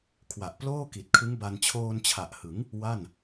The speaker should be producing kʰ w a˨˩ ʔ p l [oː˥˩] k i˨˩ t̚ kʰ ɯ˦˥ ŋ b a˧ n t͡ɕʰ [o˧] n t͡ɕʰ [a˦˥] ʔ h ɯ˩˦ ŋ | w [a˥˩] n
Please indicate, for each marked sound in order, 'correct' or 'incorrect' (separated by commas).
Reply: correct, incorrect, incorrect, correct